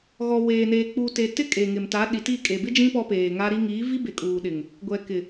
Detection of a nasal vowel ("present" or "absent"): present